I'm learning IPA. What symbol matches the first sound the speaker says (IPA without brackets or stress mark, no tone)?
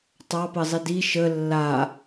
tˤ